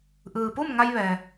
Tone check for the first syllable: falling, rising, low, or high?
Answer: low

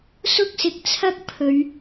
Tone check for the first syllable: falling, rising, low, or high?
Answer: high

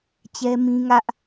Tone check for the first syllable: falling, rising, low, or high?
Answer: high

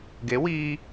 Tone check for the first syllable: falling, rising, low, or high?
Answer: rising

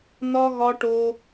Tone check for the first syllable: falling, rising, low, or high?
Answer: high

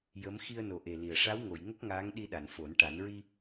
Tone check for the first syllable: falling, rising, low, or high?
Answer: rising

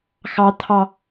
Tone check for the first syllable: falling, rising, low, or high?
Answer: high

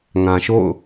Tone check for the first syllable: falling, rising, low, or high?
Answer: low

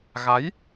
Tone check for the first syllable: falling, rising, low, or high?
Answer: rising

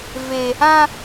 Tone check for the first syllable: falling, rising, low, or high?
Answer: high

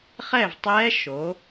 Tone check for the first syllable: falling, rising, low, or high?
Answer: falling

